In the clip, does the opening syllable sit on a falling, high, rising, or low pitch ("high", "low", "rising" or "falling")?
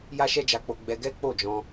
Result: high